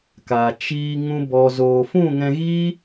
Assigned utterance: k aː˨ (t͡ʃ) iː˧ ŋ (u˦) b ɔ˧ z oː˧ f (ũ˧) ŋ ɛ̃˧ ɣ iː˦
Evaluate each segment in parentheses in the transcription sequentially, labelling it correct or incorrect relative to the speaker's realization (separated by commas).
correct, incorrect, incorrect